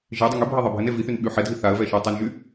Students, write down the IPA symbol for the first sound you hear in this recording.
ʒ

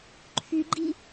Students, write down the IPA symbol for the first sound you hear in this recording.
ǃʰ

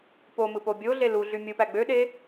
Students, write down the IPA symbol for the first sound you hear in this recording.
p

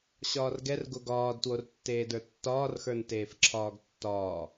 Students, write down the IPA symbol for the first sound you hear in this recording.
ɕ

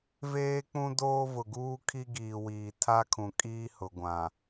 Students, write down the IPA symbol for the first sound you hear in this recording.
v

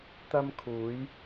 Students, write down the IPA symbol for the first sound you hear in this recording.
t̪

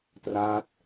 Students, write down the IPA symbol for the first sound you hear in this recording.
t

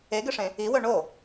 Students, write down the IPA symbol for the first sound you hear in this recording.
e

